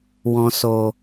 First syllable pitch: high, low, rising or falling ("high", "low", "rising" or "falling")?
low